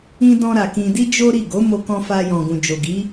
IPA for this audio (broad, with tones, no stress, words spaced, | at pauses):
ĩ˧dɔ̃˧ɾa˨ kĩ˧di˦ d͡ʒo˦ɾi˦˨ ɡo˨˦mo˧kɔ̃˧fa˧ jɔ̃˨ɡũ˨d͡ʒo˨ɡi˨˦